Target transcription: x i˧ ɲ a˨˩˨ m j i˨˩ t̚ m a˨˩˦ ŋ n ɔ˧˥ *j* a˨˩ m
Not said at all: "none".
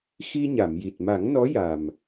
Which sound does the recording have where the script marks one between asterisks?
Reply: j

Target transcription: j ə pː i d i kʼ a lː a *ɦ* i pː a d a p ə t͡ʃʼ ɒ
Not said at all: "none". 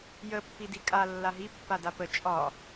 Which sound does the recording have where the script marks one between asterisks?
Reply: ɦ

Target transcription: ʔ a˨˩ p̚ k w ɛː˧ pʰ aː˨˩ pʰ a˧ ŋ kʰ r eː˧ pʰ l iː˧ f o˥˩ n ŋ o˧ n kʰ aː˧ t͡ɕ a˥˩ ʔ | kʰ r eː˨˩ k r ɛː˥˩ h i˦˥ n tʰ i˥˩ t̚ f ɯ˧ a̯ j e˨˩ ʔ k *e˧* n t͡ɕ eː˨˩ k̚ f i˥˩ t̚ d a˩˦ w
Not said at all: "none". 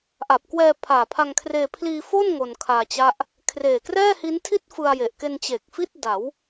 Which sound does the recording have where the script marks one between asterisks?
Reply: e˧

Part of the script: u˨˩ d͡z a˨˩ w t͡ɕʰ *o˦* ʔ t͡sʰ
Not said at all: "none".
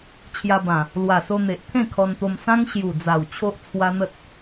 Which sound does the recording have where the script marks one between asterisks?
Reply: o˦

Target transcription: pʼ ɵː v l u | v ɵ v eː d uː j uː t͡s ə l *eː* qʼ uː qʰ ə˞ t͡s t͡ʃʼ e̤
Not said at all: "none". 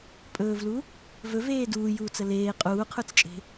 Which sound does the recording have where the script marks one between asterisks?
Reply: eː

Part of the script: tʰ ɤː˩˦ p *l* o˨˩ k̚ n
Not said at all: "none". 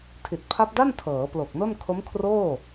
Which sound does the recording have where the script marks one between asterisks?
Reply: l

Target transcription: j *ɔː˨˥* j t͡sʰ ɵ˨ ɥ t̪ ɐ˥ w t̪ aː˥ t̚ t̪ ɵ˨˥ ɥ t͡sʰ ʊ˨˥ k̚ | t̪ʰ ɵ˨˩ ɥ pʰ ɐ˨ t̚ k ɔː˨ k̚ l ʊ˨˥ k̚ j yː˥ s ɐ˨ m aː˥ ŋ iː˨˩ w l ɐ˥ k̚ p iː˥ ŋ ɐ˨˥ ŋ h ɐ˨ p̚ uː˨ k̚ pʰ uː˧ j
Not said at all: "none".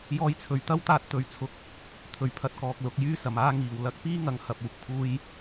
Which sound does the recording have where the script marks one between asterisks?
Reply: ɔː˧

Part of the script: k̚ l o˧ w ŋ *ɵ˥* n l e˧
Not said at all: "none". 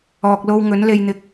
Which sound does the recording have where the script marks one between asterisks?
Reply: ɵ˨˥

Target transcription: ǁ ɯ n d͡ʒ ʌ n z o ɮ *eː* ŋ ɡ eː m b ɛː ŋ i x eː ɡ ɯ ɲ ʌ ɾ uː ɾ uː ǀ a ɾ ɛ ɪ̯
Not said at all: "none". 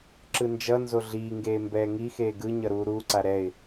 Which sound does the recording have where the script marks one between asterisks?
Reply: iː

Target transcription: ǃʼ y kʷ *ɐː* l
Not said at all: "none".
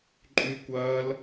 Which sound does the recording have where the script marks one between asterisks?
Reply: ɐː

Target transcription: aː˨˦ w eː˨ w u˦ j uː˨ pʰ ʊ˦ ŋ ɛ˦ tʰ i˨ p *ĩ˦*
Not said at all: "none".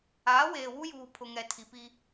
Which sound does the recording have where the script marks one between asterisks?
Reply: i˦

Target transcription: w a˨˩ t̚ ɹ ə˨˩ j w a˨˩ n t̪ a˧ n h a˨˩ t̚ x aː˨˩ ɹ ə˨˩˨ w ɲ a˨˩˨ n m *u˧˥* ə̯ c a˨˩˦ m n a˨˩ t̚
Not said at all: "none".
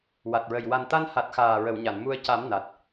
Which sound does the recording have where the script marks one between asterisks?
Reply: u˧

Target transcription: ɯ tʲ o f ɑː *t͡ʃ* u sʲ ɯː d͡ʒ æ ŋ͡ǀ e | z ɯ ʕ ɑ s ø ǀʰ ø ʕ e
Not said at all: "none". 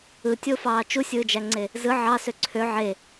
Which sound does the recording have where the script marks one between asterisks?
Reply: t͡ʃ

